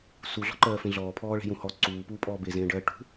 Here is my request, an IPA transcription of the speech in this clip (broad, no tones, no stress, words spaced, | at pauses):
suɮɔ̤ǃɜːfẽ ɮɔːpʰɔːɭe̤jũ hɔ ǀuːpuːpʼɔː bezẽːɖɜː ʈṳ